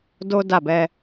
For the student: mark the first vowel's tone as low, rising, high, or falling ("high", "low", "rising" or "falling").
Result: high